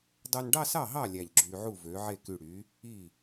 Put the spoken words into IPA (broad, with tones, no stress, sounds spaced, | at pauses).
dˤ o˧ n ɖ ɑ˥˧ s ɑ˥˩ ɦ ɑ˥˩ lʲ æ˧˩ ʎ ɡ͡ǁ yː˧ ʕ u˥˩ v øː˩˥ ʕ e˥˩ k y˧˩ ɽ yː˩˥ | iː˥˩